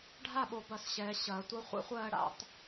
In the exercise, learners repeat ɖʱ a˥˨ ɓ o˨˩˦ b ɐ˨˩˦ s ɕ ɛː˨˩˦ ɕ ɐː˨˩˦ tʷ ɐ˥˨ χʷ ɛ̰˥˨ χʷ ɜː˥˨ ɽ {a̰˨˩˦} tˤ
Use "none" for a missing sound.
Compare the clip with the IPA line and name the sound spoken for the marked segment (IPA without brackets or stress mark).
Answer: a̰˨˩˦